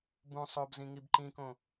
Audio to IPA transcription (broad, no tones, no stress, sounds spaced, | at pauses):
b ũ sˤ o b z ĩ ŋ i b ǃ ĩ k õ